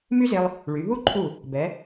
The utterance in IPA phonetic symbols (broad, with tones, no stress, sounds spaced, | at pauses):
m y˥ z e˧ lˠ | ɭ y˩˧ ɦ u˥ ǃʰ u˧˩ | b ɛ˩˧